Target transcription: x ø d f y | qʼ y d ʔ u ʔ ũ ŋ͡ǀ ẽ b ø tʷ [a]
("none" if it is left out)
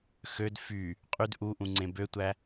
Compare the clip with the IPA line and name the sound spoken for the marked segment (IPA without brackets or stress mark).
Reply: æ